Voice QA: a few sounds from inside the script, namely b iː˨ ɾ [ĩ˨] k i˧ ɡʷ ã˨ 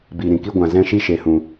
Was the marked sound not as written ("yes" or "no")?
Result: no